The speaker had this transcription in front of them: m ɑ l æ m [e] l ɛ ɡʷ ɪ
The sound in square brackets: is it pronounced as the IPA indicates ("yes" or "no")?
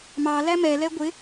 no